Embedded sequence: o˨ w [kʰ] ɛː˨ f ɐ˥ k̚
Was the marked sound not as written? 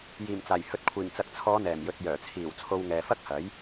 yes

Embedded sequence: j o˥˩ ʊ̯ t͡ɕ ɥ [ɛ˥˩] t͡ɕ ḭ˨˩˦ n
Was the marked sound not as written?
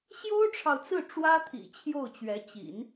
yes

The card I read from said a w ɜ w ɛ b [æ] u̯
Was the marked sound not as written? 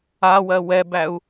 no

